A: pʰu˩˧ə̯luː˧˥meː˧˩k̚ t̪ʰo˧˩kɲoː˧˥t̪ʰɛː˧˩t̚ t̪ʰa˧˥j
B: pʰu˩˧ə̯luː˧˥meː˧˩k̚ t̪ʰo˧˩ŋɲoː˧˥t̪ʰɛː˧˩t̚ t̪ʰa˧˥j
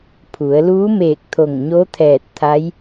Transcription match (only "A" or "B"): B